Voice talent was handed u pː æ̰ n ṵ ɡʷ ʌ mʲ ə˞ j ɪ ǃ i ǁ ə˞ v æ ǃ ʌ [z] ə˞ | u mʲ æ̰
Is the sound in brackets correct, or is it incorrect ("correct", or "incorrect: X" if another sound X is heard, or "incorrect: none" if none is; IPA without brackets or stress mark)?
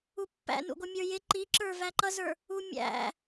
correct